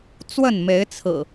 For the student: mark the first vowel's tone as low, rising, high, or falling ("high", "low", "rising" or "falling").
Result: falling